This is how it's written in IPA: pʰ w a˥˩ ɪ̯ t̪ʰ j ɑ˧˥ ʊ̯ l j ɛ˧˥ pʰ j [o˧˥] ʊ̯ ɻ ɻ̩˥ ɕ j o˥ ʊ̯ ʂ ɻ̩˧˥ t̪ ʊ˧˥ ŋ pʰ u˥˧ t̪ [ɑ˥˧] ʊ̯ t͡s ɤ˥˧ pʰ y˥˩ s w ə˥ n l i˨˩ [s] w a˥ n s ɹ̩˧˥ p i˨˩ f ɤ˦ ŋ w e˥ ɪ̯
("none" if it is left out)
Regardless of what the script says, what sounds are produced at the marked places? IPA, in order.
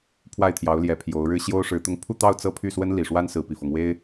o˧˥, ɑ˥˧, ʂ

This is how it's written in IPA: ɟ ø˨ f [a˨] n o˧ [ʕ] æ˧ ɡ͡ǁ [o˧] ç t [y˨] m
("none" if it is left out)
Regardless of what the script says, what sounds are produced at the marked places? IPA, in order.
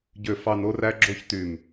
ɑ˨, r, o˧, y˨

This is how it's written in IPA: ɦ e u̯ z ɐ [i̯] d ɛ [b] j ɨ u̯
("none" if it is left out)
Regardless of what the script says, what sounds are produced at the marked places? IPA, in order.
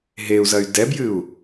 y̯, b

